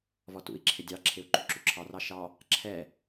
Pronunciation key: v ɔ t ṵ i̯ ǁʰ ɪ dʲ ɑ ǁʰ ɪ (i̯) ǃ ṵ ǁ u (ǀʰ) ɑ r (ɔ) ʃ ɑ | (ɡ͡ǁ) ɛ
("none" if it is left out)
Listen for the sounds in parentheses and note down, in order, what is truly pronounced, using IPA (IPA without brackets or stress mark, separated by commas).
u̯, ǁʰ, ɑ, ǁʰ